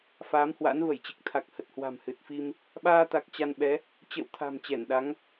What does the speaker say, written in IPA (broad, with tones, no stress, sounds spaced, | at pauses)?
f aː˨˦ m h w a̰˧˥ n v ə˧˩ j t͡ɕ ɨ˨˩ k̚ t̪ʰ a˨˩ k̚ h ə˨˩ t̚ h w a̤˨˩ m h ɨ˨˩ t̚ f i˧ m | ɓ aː˧ t̪ a˨˩ k̚ t͡ɕ a˧ n ɓ ɛ˨˦ | t͡ɕ ə̰ː˧˨ w t̪ʰ a̤˨˩ m t͡ɕ ɛ˧˩ n ɗ a˨˦ ŋ